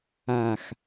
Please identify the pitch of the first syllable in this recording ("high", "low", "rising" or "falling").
low